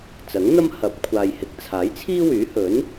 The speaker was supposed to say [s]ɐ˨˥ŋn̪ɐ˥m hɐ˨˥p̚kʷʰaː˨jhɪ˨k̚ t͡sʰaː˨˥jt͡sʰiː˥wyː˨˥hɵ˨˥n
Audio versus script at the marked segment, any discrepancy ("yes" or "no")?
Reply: yes